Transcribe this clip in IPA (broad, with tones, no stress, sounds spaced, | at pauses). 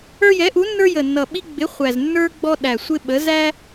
ə˞˦ j ɛ˨˥ ʔ u˨˥ nː ə˞˦ j ə˨˩ nː ʌ˨˩ ɓ i˦ ɡ͡b ɪ˨˥ χʷ æ˨˩ z nː ə˞˦ ɡ͡b ɔ˦ ɗ æ˨˩ sʷ ɪ˦ ɓ ə˨˥ z æ˦